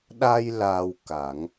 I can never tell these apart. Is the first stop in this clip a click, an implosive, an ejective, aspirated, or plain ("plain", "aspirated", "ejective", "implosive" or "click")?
implosive